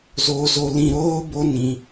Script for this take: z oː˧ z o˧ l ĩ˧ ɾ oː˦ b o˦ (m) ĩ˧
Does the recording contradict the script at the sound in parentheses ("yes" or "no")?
yes